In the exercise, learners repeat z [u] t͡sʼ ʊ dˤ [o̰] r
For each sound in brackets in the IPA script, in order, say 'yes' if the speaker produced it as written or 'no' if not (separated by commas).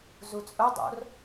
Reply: yes, yes